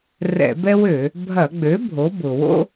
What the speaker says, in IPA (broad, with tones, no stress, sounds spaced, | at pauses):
r ɛ̰˧˩˧ b ɛ˥ w ø˧˩˧ | bʱ ɐ˧˩˧ ɡ͡b ø˩˥ bʱ o˩˥ b ʊ˩ w o̰˥